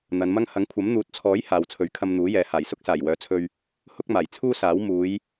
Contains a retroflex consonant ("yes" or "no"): no